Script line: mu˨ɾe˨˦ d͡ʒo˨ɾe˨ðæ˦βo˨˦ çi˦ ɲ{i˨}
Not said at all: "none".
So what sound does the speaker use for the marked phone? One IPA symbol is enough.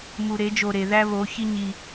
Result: i˦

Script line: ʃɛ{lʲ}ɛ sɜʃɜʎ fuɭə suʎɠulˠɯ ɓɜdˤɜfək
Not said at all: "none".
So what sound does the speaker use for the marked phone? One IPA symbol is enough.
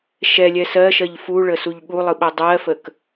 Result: lʲ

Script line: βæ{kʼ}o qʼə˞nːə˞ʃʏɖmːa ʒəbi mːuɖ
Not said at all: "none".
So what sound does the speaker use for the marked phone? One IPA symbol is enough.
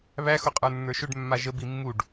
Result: x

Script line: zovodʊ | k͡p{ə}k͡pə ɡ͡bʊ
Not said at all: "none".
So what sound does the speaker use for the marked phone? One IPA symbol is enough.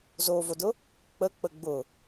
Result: ə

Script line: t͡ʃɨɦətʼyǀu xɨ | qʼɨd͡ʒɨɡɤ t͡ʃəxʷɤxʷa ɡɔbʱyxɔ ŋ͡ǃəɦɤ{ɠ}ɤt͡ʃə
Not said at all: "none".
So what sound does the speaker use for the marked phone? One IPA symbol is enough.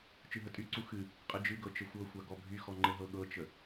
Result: ɠ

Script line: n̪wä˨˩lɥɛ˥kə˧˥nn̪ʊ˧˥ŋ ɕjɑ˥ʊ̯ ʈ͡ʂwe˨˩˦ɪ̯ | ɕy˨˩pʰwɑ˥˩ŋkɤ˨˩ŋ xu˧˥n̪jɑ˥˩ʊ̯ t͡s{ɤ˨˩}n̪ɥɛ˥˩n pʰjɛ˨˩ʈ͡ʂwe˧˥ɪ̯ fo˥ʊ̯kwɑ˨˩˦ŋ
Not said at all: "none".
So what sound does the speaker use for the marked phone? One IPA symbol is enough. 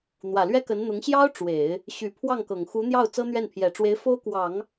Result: ɤ˥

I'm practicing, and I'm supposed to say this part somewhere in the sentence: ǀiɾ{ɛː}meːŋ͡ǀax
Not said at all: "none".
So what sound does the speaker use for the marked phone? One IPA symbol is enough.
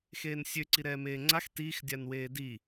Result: ɛː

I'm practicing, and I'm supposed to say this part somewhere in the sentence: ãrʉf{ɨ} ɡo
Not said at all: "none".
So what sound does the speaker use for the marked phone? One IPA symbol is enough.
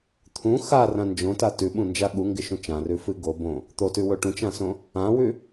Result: ɨ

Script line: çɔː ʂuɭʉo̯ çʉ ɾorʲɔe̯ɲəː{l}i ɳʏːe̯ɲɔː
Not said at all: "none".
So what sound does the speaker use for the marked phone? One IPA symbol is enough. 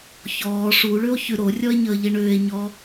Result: ʎ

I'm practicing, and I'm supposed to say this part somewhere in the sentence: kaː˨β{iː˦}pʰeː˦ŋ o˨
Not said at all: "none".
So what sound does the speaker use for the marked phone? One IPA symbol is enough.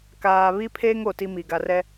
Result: i˦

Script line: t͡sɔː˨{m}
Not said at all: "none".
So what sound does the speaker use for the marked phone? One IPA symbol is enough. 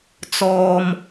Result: m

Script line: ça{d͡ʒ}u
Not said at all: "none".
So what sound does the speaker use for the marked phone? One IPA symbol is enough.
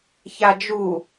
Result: d͡ʒ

